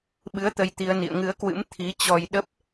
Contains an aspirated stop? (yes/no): yes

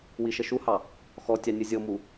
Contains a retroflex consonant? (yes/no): no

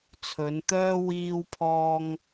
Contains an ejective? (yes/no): no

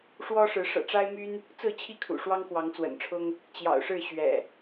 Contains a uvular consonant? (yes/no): no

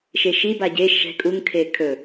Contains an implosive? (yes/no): no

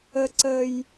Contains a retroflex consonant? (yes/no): no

